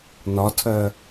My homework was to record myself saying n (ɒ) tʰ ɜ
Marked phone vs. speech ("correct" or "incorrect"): correct